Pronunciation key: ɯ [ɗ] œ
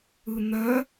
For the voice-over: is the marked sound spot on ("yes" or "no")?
no